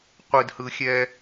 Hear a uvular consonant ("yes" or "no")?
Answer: yes